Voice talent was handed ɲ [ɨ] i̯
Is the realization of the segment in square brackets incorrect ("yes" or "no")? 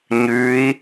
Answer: yes